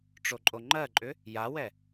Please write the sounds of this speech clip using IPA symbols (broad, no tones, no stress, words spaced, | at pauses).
ʈ͡ʂoǃʼoŋ͡ǃɜǃʼʏ | jawɛ